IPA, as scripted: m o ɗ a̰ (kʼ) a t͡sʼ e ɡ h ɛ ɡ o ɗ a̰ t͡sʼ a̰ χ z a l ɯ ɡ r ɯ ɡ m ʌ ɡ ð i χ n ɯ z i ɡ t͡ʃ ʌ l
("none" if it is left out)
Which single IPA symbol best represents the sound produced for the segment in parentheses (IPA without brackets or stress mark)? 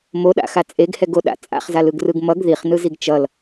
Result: x